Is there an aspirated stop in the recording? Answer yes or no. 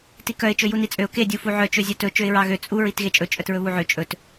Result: no